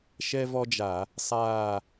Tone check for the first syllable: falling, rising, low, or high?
high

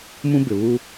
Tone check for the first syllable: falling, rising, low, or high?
high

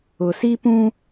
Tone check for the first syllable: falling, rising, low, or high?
low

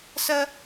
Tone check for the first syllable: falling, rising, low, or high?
high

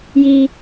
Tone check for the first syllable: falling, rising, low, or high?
low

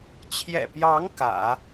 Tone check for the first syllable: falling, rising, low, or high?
low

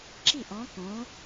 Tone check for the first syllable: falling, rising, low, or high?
falling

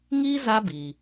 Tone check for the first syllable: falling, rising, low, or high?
high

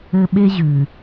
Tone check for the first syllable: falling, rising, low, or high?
high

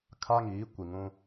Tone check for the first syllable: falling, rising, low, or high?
high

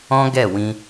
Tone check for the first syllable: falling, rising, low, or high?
high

